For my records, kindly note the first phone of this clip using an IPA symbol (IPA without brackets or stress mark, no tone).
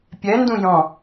pʲ